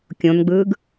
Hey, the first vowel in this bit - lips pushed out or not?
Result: yes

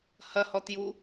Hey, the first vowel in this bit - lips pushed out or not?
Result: no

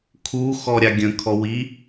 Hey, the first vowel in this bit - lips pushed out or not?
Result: yes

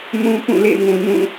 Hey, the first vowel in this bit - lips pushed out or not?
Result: yes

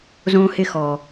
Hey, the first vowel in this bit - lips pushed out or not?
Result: yes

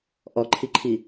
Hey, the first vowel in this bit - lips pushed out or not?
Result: yes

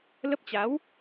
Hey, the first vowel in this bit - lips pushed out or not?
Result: no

